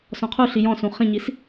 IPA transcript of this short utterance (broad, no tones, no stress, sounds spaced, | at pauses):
s ɔ̃ qʰ u ɬ i j ɔ̃ s ũ χ ĩ ɲ i s